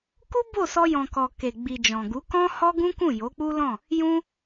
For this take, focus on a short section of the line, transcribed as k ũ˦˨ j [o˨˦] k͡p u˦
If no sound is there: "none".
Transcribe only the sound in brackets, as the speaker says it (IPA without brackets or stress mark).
o˨˦